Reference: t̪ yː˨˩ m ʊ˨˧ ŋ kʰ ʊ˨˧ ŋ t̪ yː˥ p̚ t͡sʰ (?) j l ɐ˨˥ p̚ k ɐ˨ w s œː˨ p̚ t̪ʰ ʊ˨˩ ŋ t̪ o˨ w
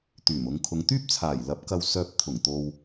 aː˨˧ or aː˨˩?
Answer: aː˨˩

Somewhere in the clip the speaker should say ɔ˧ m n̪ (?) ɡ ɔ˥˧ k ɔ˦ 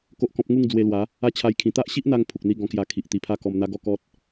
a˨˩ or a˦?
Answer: a˦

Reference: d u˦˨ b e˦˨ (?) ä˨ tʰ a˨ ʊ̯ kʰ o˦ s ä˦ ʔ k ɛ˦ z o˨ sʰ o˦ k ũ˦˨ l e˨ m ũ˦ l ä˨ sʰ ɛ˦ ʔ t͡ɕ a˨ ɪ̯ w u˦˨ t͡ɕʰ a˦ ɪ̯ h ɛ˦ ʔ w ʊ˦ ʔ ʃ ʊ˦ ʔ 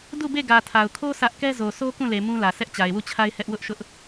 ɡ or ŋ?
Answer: ɡ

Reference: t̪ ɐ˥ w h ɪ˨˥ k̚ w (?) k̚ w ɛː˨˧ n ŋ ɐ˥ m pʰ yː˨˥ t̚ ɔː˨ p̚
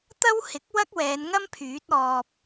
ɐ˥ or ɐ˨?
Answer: ɐ˥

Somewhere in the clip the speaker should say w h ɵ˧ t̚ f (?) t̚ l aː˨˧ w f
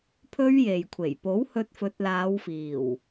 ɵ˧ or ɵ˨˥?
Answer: ɵ˨˥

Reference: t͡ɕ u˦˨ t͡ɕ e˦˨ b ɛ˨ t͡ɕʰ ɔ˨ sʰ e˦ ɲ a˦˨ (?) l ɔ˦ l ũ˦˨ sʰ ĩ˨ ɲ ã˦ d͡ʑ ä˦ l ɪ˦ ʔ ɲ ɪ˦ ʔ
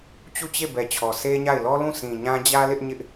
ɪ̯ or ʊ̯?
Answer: ɪ̯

